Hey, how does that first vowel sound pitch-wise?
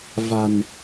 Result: low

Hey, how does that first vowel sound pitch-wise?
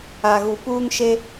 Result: low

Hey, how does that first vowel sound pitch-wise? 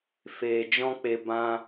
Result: low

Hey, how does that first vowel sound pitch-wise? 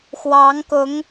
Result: rising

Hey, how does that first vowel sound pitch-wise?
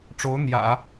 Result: rising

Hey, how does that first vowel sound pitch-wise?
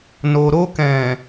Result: low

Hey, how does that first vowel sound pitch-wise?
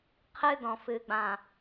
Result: high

